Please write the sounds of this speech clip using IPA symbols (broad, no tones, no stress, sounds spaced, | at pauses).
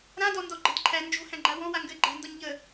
ɾ ã d ɔ n d ɔ ɡ͡ǃ ə̤ d ǃʰ æ n d͡ʒ o̤ h æ̃ ɡ͡ǃ a w ɔ̃ w a ŋ ɡ ɘ ɡ͡ǃ æ̤ n d ɔ ɲ ʎ ə